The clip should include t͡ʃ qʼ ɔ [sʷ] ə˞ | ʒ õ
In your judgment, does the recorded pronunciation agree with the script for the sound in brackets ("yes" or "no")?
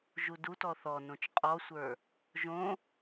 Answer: yes